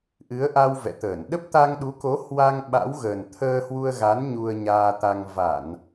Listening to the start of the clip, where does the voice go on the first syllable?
rising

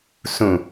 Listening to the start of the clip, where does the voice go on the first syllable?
low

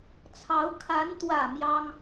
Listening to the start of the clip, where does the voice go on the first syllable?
rising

